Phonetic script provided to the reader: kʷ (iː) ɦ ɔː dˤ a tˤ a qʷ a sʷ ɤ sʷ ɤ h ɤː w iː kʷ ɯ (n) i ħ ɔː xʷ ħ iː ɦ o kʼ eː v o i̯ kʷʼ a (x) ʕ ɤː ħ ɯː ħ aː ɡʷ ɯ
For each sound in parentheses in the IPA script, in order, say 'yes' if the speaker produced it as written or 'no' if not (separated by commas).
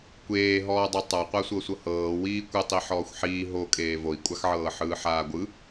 no, no, yes